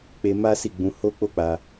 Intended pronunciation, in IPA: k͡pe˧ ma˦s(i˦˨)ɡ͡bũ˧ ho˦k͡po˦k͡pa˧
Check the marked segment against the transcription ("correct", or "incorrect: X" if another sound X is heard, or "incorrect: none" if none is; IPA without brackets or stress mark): correct